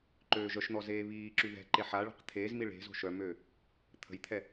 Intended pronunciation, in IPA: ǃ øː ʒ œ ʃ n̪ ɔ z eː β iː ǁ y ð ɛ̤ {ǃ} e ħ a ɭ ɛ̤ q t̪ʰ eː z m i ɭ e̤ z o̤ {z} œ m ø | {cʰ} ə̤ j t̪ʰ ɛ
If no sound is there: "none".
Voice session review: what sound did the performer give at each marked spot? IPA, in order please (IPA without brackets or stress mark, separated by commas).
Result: ǃ, ʃ, t̪ʰ